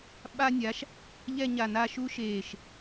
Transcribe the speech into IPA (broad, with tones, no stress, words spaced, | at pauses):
ɓa˥nʲa˩˥ʃ | ʎɛ˥˧ɲa˧˩naː˥˧ʃ u˥ʃeː˧˩ʃ